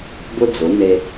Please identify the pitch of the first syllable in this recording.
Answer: high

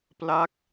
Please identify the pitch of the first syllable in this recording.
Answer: falling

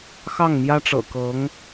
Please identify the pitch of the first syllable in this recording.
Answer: falling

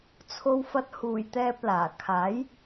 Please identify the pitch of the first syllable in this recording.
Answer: low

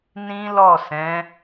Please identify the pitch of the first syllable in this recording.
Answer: high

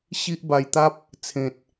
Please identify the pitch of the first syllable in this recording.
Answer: high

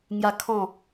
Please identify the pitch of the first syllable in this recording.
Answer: high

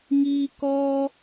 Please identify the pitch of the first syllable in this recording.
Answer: high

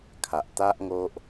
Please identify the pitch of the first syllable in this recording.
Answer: low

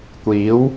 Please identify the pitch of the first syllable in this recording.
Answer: rising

